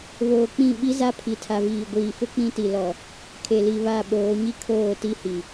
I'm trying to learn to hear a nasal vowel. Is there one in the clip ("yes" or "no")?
yes